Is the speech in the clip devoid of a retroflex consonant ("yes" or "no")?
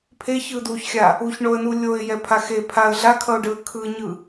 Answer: no